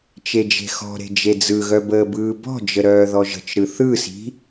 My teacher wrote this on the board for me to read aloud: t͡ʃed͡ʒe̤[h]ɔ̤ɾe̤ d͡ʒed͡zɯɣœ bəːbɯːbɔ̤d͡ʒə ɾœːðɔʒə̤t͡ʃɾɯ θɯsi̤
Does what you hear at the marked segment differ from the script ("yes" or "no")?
yes